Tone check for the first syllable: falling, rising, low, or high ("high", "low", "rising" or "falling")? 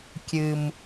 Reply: low